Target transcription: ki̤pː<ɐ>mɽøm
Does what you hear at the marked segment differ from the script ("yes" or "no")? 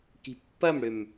no